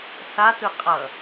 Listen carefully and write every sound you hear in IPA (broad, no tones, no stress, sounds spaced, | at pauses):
s a t ɯ qʼ ʌ